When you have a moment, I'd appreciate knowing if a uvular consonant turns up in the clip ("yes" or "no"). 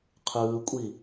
yes